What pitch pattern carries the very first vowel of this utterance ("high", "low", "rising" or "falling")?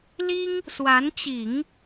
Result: high